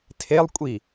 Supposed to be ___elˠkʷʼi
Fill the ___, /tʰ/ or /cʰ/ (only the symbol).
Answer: tʰ